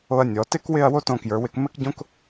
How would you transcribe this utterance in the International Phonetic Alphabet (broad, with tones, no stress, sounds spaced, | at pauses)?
o˧ ɐ̯ nʲ ɔ˩˧ t ɪ˥ k w ɪ˥˧ ɐ̯ w o˥ t õ˧ k j ə˞˩˧ w ɪ˧ k m ɘ˥ k ɟ õ˥ k